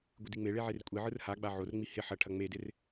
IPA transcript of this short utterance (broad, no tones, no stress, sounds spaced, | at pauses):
ɡʷ ɪ d i ŋ͡m e ɭ e ʕ e r kʷʼ i ʕ ɯ r h a ɡ͡b a ʕ o r ŋ͡m i h ɪ ħ ɐ ʈʰ ɐ ŋ͡m e d ɪ r